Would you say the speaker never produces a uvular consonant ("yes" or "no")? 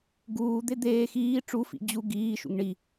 yes